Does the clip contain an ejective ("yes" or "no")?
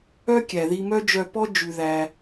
no